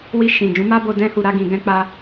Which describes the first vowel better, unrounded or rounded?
unrounded